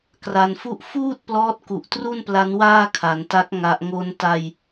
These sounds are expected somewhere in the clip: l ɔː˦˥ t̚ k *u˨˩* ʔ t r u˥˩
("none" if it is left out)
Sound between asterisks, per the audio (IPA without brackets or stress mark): u˨˩